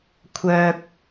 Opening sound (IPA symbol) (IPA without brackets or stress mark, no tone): kʷʰ